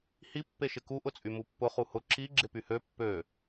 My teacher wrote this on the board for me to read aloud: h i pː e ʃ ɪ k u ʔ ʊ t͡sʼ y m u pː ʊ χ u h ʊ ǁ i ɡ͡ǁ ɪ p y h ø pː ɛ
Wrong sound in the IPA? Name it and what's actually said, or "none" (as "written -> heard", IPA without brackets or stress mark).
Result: ɛ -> ø